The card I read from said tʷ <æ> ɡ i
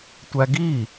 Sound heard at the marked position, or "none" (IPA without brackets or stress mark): æ